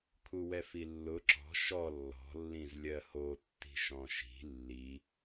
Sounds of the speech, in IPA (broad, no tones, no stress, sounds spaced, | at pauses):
kʰ u w ɛ f i lː ʊ ǁ ɔ̤ ʃ ɔ lː ɔ̤ lː ĩ z lʲ ɜ h o tː i̤ ʃ ɔ̃ ʃ i̤ lː i